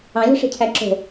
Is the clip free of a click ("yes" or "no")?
no